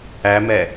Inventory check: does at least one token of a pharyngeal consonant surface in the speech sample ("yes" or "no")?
no